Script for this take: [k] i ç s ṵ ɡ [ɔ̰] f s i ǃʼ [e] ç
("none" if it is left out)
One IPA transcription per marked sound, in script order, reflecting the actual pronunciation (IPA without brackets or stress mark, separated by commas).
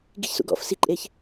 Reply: ɡ, ɔ̰, e